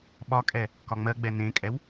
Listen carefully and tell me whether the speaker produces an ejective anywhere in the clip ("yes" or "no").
yes